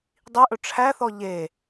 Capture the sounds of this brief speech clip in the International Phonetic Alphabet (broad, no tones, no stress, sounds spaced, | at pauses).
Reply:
dˤ i ʔ ɵ ʈ͡ʂʰ æ θ ɔ ʎ e